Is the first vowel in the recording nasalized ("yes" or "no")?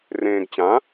yes